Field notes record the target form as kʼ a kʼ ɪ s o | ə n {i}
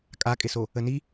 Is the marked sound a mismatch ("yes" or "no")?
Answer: no